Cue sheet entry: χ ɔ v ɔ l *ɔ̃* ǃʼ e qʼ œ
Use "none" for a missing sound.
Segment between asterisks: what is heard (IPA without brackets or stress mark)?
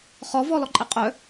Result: ɔ